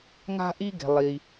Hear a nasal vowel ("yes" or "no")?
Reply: no